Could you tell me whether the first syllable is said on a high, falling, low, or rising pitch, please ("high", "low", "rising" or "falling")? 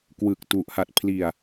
low